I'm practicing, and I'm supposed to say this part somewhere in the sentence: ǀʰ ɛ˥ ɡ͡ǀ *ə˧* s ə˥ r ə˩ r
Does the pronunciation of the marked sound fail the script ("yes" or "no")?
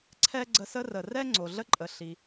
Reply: no